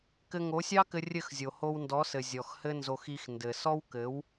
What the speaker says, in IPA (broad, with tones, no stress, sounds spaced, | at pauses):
k ɘ˧ ŋ o˨˦ sʲ ɑ˦ k ɘ˧ rʲ ɘ˦˨ x zʲ o˨ h o˧ w n d ɔ˨˦ s ɘ˨ zʲ ɔ˨ x h ɘ˦ n z o˧ x i˧ x n d ɘ˨ s ɔ˦ w k ɘ˨˦ w